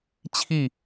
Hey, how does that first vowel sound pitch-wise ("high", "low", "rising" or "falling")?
falling